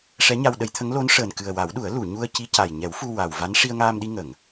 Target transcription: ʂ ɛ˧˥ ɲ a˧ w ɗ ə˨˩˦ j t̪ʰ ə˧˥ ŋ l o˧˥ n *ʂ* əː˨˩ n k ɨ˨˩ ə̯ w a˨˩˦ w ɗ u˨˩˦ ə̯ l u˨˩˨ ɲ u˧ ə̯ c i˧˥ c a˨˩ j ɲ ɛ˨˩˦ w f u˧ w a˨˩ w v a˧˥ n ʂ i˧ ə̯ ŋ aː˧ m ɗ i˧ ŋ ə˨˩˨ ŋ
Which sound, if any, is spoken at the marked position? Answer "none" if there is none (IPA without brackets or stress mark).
ʂ